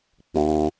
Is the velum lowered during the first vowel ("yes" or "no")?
yes